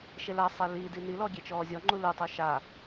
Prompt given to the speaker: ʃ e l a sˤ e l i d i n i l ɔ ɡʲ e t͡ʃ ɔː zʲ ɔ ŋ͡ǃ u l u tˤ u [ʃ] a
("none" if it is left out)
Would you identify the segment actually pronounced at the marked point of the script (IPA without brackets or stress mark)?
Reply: ʃ